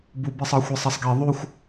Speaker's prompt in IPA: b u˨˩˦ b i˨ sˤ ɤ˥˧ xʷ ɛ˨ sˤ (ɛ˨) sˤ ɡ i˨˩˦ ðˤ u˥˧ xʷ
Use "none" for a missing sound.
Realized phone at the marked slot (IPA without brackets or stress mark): ɛ˨